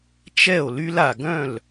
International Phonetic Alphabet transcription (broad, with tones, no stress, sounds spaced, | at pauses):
t͡ʃ ɛ˥˩ o̯ l y˧ l a˩ ɡ œ̃˥˩ l